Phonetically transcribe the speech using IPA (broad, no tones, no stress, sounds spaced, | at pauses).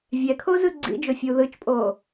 vʲ ɛ kʰ oː z ɯ ɡ͡ǀ ḭ d͡ʒ o fʲ uː ð ɯ t͡ʃ pʼ oː